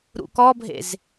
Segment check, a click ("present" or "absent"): absent